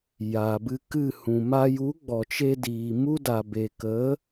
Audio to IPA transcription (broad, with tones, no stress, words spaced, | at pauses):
ja˨bɨ˧kɨ˦˨hũ˨ ma˧ju˨˦ ɡ͡bɔ˨t͡ʃe˧diː˨ mu˦ da˨be˨ kə˨˦